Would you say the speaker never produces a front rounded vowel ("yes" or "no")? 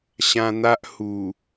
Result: yes